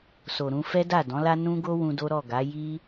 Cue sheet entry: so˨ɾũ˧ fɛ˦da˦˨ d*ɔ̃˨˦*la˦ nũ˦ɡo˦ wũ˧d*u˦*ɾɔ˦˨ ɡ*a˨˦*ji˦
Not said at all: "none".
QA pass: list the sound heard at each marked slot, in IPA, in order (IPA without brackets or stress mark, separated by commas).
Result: ɔ̃˨˦, o˦, a˨˦